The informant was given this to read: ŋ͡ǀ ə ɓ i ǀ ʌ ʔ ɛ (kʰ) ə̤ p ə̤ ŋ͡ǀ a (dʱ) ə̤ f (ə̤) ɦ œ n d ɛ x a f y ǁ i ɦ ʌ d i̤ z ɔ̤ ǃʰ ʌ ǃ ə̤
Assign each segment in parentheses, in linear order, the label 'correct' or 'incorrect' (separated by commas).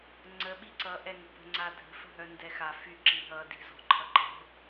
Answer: incorrect, correct, correct